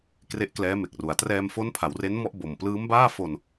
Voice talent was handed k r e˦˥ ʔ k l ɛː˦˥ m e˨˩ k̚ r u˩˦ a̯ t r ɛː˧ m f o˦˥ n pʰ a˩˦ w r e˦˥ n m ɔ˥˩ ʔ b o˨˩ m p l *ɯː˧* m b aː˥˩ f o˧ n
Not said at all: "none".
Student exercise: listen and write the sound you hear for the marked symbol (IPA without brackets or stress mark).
ɯː˦˥